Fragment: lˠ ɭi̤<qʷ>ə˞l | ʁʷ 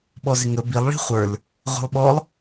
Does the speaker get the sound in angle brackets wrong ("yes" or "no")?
yes